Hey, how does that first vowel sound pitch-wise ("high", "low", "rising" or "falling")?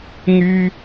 high